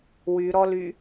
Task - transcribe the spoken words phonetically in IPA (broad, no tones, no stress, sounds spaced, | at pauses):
w y ɾ ɔ l y